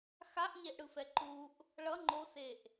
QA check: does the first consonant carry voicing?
no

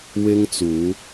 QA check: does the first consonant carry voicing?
yes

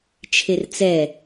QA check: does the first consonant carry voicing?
no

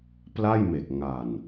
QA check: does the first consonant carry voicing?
no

